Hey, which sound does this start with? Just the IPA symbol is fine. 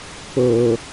p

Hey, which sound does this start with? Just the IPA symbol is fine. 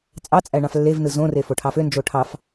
t͡sʼ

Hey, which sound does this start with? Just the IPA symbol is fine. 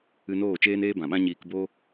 ɨ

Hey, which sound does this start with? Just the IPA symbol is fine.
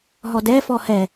ɦ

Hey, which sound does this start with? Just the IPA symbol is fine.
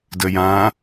d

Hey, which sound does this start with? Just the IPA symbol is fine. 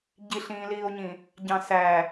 ɟ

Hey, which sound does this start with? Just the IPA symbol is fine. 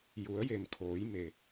j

